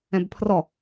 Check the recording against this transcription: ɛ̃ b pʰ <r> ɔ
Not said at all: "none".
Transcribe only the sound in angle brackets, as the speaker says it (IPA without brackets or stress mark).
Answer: r